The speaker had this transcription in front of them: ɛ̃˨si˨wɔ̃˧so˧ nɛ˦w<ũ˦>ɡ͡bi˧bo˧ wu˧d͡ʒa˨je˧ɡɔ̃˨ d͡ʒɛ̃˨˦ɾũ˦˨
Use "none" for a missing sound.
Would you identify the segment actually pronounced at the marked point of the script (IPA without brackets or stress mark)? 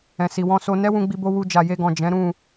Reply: ũ˧